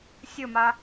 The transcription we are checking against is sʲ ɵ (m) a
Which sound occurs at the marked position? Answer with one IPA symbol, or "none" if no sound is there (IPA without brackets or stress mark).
m